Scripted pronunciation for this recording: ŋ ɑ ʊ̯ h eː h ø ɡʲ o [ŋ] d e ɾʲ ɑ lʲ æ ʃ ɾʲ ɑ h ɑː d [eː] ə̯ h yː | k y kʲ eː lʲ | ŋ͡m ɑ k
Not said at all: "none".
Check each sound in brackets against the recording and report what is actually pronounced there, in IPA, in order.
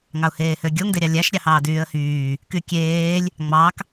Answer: ŋ, yː

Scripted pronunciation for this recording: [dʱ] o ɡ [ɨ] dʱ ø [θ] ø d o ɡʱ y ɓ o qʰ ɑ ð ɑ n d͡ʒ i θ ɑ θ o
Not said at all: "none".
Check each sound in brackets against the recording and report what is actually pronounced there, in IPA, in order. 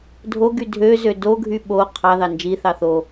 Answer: dʱ, y, z

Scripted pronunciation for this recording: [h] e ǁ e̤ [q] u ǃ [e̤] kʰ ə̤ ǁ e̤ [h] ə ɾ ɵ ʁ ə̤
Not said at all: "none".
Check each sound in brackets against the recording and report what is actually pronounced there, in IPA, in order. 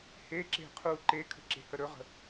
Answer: h, qʰ, e, h

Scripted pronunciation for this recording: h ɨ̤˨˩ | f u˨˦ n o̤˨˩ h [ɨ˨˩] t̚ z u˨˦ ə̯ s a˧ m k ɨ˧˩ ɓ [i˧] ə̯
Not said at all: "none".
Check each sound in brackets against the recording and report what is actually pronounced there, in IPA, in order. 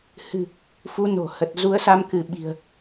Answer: ə˨˩, i̤˨˩

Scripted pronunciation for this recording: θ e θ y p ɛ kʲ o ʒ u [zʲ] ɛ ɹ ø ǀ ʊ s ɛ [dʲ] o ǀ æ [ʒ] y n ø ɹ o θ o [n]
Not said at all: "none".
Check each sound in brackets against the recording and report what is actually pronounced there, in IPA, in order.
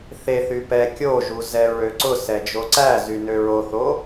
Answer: z, d͡ʒ, z, none

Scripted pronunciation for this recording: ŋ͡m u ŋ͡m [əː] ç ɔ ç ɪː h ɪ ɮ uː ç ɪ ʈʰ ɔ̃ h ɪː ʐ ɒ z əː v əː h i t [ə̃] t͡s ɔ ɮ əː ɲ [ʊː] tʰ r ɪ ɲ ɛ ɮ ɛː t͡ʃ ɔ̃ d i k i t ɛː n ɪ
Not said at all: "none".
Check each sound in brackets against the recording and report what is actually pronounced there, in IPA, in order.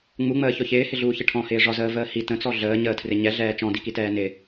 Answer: əː, ə̃, əː

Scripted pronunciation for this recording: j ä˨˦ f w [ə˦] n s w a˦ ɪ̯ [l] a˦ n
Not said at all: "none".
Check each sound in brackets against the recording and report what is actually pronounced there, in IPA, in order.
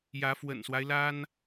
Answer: ə̰˨˩, l

